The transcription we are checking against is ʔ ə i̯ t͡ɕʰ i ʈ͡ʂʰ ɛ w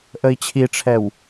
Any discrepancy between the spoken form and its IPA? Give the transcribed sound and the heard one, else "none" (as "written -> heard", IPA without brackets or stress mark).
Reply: none